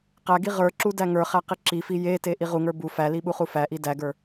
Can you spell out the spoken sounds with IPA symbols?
qæɡi ʁə˞ǁu dæŋə˞χæ qiǁifi jete ʔiʁuŋə˞ bu fæli ɓuχufæʔi dæɡə˞

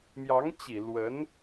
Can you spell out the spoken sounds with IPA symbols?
mjɑ˧˥ŋt͡ɕi˨˩ lwə˧˥n

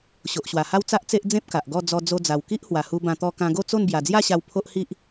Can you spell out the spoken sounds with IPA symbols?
ɕo˨ʔɕwa˨˩ha˦w t͡sa˦ʔt͡se˦ʔd͡zẽ˦p̚ ka˨ʔɡɔ˥˧ d͡zɔ˧ d͡zo˧d͡za˨˩w ki˦ʔhwa˨˩hu˧bã˧ t̪ɔ˧ kã˧ɡo˥˧t͡so˥˧n bja˨˩d͡zja˥˧ɕa˧w pʰo˦ʔhi˦ʔ

